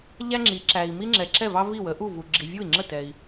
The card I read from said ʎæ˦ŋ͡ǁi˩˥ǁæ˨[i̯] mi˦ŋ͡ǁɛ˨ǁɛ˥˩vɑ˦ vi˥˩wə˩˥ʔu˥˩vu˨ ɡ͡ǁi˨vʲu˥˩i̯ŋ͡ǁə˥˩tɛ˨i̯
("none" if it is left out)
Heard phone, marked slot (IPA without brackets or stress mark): i̯